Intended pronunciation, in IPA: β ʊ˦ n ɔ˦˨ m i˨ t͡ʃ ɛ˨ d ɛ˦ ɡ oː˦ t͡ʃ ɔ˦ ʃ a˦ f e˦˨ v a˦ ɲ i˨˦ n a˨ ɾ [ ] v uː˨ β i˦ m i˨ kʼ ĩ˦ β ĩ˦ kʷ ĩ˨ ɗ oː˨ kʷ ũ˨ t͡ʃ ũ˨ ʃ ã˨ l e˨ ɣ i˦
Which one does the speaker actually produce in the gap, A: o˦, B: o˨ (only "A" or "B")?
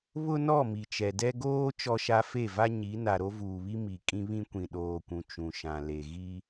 A